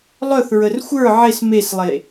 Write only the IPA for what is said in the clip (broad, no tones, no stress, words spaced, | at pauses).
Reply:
lˠœθɹər xʷə˞ ʕes meslˠe